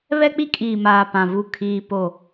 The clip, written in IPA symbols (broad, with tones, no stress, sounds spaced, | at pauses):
β ɛ˦ k͡p i˦ kʼ iː˨ m aː˨ p ã˨ v u˦˨ kʰ iː˦ p o˦˨